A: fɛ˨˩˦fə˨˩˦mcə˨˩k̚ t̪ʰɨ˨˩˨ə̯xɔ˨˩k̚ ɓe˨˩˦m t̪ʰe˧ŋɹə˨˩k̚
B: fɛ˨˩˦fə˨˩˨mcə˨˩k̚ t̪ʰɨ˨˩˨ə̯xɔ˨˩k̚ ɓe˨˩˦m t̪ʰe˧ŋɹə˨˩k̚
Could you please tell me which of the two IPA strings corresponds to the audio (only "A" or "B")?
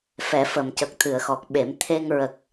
B